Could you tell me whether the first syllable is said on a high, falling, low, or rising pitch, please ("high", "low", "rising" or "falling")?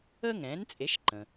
high